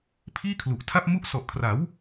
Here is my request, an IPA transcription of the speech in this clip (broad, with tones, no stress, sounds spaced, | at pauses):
pʰ iː˥˩ kʰ l u˨˩ ʔ tʰ a˥˩ p̚ m u˦˥ ʔ s ɔ˨˩ ʔ kʰ r a˩˦ w